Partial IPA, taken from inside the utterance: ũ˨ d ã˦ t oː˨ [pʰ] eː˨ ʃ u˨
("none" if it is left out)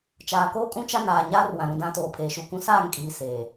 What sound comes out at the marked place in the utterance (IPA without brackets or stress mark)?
pʰ